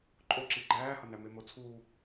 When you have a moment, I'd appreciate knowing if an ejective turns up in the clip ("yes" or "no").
yes